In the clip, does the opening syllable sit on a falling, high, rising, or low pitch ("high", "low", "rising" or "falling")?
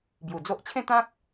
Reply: low